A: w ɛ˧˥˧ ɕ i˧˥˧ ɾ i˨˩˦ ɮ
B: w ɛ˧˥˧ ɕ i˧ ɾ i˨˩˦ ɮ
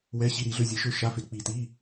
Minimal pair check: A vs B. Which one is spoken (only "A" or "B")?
B